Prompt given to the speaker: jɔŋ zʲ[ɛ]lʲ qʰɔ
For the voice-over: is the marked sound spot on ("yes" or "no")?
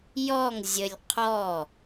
no